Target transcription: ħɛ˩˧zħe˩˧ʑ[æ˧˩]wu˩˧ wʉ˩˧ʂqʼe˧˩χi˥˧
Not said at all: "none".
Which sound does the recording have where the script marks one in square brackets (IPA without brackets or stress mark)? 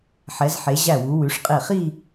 æ˧˩